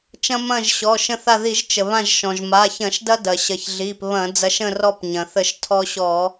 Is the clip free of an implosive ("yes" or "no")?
yes